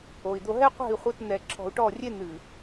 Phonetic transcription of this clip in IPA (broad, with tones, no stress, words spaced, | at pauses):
o˨i̯ d̪o˨ɦɛ˦qʷɛ̤˦˨i̯ χʷɘ˦t n̪ɛ˨ ǁʰɔ̤˨u̯ʈɔ˦˨ rʲe˦n̪ɨ˨